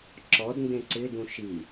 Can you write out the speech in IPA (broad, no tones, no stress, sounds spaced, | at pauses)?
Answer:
ǁ ɔ d n d ẽ ǀ ɪ d ũ ʃ i